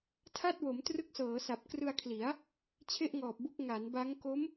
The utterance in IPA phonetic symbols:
tʰa˥˩t̚wo˩˦m trɯ˦˥k̚sɤː˩˦ sa˨˩p̚ krɯ˧a̯kʰli˩˦a̯ | t͡ɕʰe˥˩ʔŋɔː˨˩p̚bu˦˥k̚ ŋa˩˦nba˦˥ŋ ko˦˥m

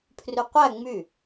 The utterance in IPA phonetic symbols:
pʰryqʷæ ŋ͡my

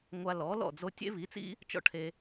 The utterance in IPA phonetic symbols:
ŋʷa˧lɔ˩˥lɔ̰˥˩ d͡zo˧ tʲḛ˥βi˩˥t͡sḭ˥ | t͡ʃɔ̰˥ʈʰe˧

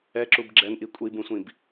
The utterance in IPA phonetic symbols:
ɛǁub ɡ͡ǁɛnʔi kʷʼibũsʷĩb

